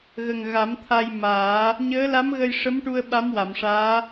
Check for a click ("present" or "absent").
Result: absent